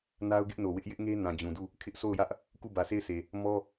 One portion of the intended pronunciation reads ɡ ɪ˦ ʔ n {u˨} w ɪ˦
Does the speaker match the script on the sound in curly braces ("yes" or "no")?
no